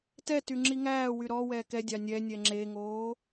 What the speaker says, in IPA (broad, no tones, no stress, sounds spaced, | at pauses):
t ɛ t y ŋ͡ǁ i ŋ æː w y ɾ ɔ w ɛː k ɛ dʲ ɑ nʲ ɛ nʲ ɛ ŋ͡ǁ e ŋ oː